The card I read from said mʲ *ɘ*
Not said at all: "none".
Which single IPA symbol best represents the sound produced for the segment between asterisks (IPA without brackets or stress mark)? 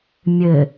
ɘ